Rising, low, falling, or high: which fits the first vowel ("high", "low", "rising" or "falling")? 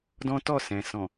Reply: high